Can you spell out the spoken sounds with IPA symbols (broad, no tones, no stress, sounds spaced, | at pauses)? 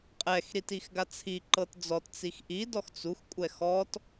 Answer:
qʼ ɛ x ɾ i t i x ɡ a t͡sʰ i ǃ ɤ t d͡z ɔ t t͡s i x ʔ i d ɔ x t͡s u x kʷʼ ɛ x ɔ t